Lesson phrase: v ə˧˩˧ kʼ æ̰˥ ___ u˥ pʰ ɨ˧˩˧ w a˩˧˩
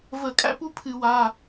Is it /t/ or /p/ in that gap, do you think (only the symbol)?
p